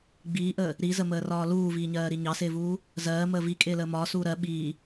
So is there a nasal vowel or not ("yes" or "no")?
no